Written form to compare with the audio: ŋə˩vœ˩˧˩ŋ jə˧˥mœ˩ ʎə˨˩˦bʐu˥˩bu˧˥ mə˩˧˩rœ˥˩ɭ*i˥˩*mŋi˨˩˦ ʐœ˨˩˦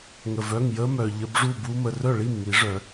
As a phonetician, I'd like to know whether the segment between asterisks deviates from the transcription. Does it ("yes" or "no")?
no